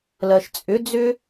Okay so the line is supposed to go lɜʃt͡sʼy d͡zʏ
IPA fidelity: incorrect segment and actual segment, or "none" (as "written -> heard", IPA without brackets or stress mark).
y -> ʏ